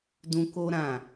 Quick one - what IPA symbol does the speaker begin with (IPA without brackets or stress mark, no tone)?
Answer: d